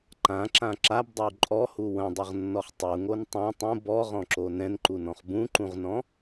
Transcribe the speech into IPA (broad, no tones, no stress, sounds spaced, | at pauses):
ǃ ã ǁ ã ǁ a b dˤ ɐ w ǃʼ ɔ h u w ɐ̃ dˤ ʌ ʁ nː ɔ χ tˤ u ŋ o n tˤ ã tˤ ũ b ɔ ʁ ɔ̃ ǁ o n ɛ̃ n ǃ u n ɔ̃ χ b ũ ǃ ũ ʁ n ɔ̃